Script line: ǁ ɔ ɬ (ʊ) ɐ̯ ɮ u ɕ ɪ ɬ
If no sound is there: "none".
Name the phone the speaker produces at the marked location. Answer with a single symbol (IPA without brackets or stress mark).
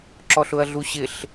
ʊ